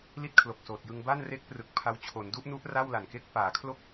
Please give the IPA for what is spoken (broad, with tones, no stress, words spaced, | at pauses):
li˥˩t̚kʰlo˨˩k̚soː˨˩t̚jɯ˧ŋ ba˥˩nre˦˥k̚ prɯ˨˩k̚pʰa˦˥wt͡ɕʰo˩˦n du˦˥ʔnu˦˥ʔ ra˥˩wla˨˩nke˦˥k̚ paː˩˦kʰlo˥˩k̚